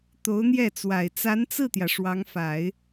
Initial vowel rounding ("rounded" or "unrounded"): rounded